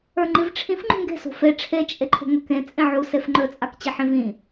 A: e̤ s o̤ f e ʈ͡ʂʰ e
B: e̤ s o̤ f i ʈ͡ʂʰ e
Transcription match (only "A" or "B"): A